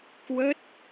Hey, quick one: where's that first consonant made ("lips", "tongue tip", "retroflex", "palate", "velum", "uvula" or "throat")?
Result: velum